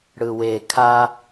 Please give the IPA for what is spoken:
ɽɯwe kʰa

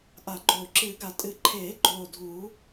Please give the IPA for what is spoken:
ʔa˨˩˦ ɡ͡ǃoː˨˩ ǁɨː˨˩˦ɡa˨˩˦ tʼɨ˨˩˦ǃʰeː˨˩˦ɡ͡ǃoː˨˩ dʱuː˨˩˦

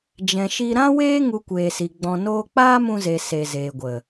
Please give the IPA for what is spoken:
d͡ʒɛ̃˨ʃi˧ ɾã˦weː˦ ŋu˧kʷeː˨si˨ ɡ͡bɔ̃˨ noː˧k͡paː˦mũ˧ze˨ se˨ zeː˨ɡʷə˨

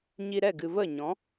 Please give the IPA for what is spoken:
ɲi˧ɾɛ˦˨ ɡɨ˨və˦˨ɲɔ̃˨˦

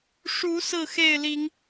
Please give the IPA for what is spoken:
ʂu˨˦ sɹ̩˥˨xe˥˨ɪ̯li˨˦ŋ

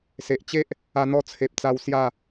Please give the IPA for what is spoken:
se˨ʔ t͡ɕe˦ʔ | a˧n̪ɔ˧t͡sʰe˨p̚t͡sa˧w sja˥˧

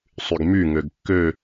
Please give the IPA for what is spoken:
sˤyɡmy ŋøɡkːø

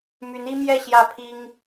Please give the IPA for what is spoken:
my˧˥ni˥ mjɛ˥˧ ɕjä˥˩pʰi˥ŋ

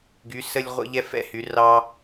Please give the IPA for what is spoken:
ɡy˨˦sə˦lʲ ʁʷə̰˦ ʎɛ˦fɛ̰˦hy˨˦rɑ˦

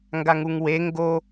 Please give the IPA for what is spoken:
ŋɡaŋuŋwe ŋɡo

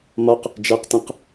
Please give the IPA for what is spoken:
mɒq | d͡ʒæqtẽq

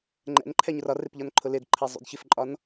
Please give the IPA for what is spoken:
ŋ͡ǃɛ̰nǃʰɛ ɲʊrɒrɪp ʎɒnǃʰʊlɪdǃʰɛ zˤṵdçɪfǃʼɒn

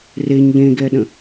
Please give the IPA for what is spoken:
reɲ ʎẽɡɛɗə̃

